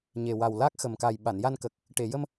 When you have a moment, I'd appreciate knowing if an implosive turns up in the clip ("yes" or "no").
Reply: yes